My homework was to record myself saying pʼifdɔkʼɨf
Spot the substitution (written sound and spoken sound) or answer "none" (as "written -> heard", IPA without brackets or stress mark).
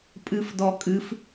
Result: i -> ɨ